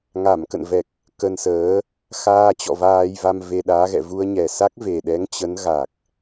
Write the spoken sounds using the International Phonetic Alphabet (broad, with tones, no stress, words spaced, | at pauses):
ŋa˧˩mkə̰˧˨nvɛ˨˩k̚ | kə˧nsəː˨˦ | xaː˧t͡ɕɔ̰˧˨ vaː˧jva˧m ve˧ɗaː˨˦ɣɛ̰˧˨ vu˧ə̯ɲɛ˨˩ sa˦˥k̚ve˨˩ɗɛ˨˦ŋ t͡ɕə˨˦nɣa˨˩k̚